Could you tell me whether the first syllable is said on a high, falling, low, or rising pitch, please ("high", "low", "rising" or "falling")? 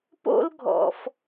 high